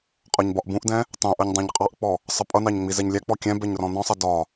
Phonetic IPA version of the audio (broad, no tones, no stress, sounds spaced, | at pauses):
qʼ ɒ ɲ b ɒ ʔ b ũ ʔ d ɛ̃ | tˤ ũ ʔ ʌ ɲ dˤ ɑ̃ ɲ qʼ ɑ ʔ k͡p ɔ | sˤ ʌ pʼ ʌ n ɑ ɲ ŋ͡m i z ɛ ɲ lʲ æ k͡p ɔ kʲ ɛ̃ b ɛ ɲ r ɔ̃ n ɔ̃ sˤ ʌ d ɒ